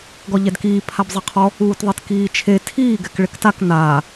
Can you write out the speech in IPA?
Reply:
ɡɔʎɛdkiː pʰabzˤɪqʰɔ | uːtðˤetkiːt͡ʃʰe tʰiː ɡɛkɭɪktak naː

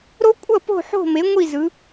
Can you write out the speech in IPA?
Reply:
ɾo˦˥kʷʼʌ˥˨ po̤˥˨ħo̤˥˨me˩˥ ŋʷi˥˨zɯ˩˧

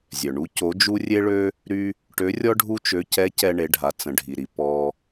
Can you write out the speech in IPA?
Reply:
zʲœ˩ɳu˧˥ co˧˥d͡ʒu˥ rʲe˥ɭø˥ | ɾy˥ | ʈø˧˥rʲɔ˥ ɖʱu˥t͡ʃø˧˥ cɛ˧˥cɛ˧ ɳe˩˧ɖʱa˩˧ t͡sə̃˩˧ɖʱi˩ɾi˩ pɔ˧

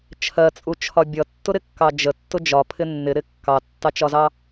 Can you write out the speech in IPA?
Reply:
t͡ʃʰɜt͡sʼut͡ʃʰɒ bʲʌtːʊɾɪkːɑ d͡ʒətːʊ d͡ʒɒpʰɪ nːɪɾɪ kːɑtːɑt͡ʃɒzɑ

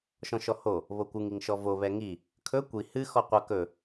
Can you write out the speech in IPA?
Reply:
ʃɔ̃ʃɔho | βokʷɨŋ iŋʃɔvo βɛŋi | kʰɵ kʷi hɨ xɔqʷɐ kɵ

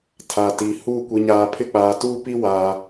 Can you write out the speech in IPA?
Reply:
tʰa˨ti˨ hu˦˨ kʷi˨ɲaː˨pʰɪ˦k͡paː˨ tuː˦pi˦ waː˨

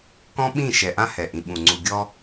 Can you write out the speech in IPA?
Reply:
kɔ̃˦ɓĩ˦˨ ʃɛ˨ʔã˦ hɛ˨ʔĩ˨ɓũ˨ ŋ͡ǀu˨ɡʲɔ˦

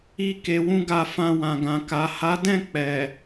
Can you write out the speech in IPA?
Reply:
i˦ ke˧wũ˦ɡa˦˨ fã˧wã˨ɡã˨ ka˨ha˨˦dɛ̃˦˨ k͡pɛ˨

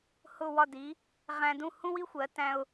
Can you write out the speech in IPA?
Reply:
hʊ˥˩ wɒ˥˩di˩˥ | ʁæ̃˧dũ˥˩ hũ˥wi˥xʷɜ˩˥tæ̃˧ʊ̯

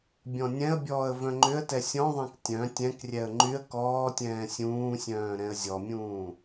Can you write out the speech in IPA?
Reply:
bʲɔ̃nʲɛ̃ə̯bʲɔːə̯ vœ̃ŋ͡ǃʏə̯tɛ sʲɔ̃ðˤɛ̃k tʲœ̃ tʲɛ̃krʲɛə̯ ŋ͡ǃyə̯ kɔːtʲɛ̃ː sʲũːsʲœ̃ː ɾɛ̃ə̯zʲɔmʲũː

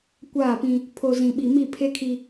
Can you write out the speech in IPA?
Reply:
kʷaː˦˨pĩ˦ | pʰo˨ zĩ˨ɓi˨ mi˦˨pʰe˦kʰi˦

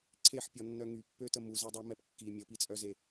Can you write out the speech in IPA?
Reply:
ǀʰeħpʲɔnːœ ŋypːøtə muzɛdˤømɛp kːi mʲəpit͡sʼœze

